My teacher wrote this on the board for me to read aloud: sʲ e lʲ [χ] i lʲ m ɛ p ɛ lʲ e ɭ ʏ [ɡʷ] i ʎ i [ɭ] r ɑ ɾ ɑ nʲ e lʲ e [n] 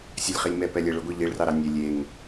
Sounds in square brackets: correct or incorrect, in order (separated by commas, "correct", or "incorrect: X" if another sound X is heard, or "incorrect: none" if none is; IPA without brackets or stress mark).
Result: correct, correct, correct, incorrect: ŋ